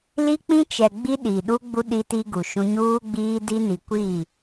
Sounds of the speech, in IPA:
li˦k͡pĩ˦t͡ʃɛ˨ ɡ͡bi˦ɗi˨ɗu˦ ɡ͡bu˦ ɗi˦ti˦ɡu˨ʃũ˦ ɲuː˦ɡ͡biː˦di˦ni˨ kʷi˦˨

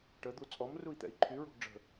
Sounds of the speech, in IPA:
ʈəd̪u t͡sʼɔmrui̯t̪ɛ̰i̯ ǃʰyɹo̤ɡ ɖ͡ʐə̤

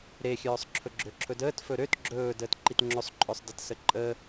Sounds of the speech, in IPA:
ɾexʲœːsˤ ǁʰɵɡ͡ǁøǁʰɵdəːt fɵɾøt ɡ͡ǁɵː dəːtǃitŋ͡ǁɵsˤǃʼœsˤ dətsəǃʼə

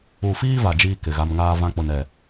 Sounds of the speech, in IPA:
u˨fiː˦ va˨d͡ʒiː˦ kɪ˨ɣa˦m ŋaː˦vã˦ k͡pʊ˦nɛ˦˨

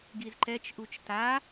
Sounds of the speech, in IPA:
ɡizǃɛt͡ʃʔut͡ʃ ta

